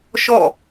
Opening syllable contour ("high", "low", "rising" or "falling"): falling